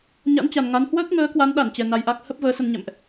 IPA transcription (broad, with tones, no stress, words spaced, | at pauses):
ɲa̰˧˥nt͡ɕa˨˩n ŋa˨˦n hwəː˦˥k̚ŋəː˨˦kwa˨˦n ɗa˧˩nt͡ɕɛ˨˩ na˧jʔa˦˥k̚ hə˦˥p̚ vəː˨˦sə˧nɲɛ̰˧˨mʔ